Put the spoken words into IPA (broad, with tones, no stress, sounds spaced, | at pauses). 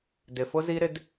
d ɪ˨ f ʊ˦ z i˦ ɾ ɪ˦ d